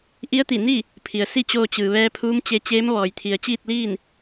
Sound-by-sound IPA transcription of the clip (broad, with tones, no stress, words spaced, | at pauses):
ʔi˧˥ə̯t̪i˧˩ni˥˨ | pʰi˩ə̯si˥˨t͡ɕoː˧ t͡ɕɯː˩ʋɛː˧ pʰuː˧˥mt͡ɕe˧t͡ɕeː˧˥m ʋɔː˩jt̪ʰi˩ə̯ t͡ɕiː˥˨t̚liː˥˨n